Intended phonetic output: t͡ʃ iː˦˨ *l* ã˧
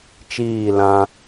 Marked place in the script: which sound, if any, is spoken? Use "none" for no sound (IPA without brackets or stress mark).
l